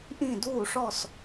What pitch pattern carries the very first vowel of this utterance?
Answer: falling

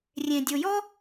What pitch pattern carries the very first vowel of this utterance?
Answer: low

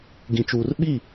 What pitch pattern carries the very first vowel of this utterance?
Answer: low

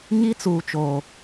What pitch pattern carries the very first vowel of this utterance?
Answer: high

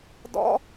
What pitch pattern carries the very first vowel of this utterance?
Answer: high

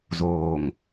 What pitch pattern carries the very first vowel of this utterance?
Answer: low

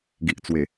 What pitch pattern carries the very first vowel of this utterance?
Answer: low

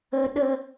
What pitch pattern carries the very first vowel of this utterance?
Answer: low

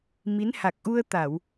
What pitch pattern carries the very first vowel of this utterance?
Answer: rising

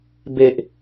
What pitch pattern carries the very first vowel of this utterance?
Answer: low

